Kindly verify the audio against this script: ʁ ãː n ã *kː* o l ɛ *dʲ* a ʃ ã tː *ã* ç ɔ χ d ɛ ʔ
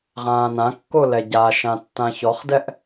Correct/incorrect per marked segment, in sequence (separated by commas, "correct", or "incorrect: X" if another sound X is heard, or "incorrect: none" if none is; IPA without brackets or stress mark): correct, incorrect: ɟ, correct